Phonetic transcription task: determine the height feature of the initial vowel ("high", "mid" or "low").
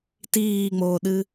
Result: high